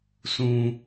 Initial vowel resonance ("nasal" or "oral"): nasal